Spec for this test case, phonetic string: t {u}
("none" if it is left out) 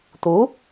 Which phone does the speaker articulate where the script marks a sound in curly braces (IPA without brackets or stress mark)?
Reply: u